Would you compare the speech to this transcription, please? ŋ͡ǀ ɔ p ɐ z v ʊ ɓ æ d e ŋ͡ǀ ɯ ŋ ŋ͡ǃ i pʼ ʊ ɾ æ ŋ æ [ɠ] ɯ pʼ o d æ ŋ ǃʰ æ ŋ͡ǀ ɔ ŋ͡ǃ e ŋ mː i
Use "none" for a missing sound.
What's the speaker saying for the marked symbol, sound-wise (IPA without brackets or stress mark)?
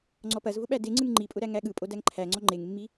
ɠ